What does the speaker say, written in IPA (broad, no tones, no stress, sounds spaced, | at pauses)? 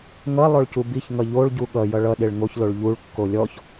ŋ ʌ lˠ o ɭ c u b i ç ŋ ʌ ʎ o ɭ ɟ u ɠ ʌ j ʌ ɭ ʌ ɗ e ɭ ŋ o ç l o ɭ ʎ u ɭ kː o lʲ ɔ ç